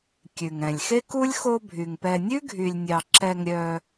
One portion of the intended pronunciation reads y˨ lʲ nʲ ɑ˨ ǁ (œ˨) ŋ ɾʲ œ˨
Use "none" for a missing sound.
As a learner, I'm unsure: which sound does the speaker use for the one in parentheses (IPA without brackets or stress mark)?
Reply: ɛ˨